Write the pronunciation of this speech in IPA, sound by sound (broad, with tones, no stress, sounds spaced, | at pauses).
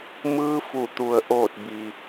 m ɯː˧˥ f u˧˩ t̪ u˩ ə̯ ʔ oː˧˩ t̚ b i˩